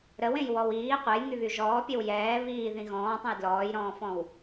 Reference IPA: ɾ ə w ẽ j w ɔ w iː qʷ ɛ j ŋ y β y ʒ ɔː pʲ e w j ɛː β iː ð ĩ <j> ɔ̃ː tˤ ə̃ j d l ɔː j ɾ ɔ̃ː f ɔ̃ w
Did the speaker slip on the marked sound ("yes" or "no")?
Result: yes